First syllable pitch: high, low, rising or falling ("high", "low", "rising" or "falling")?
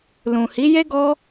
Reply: low